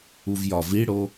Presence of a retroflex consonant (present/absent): present